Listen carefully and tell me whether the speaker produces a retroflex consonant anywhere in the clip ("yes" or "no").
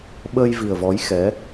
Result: no